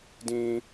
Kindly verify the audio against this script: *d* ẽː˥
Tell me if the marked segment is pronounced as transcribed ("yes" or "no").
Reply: yes